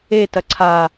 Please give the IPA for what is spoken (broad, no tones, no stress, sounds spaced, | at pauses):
e t ɐ ǀʰ a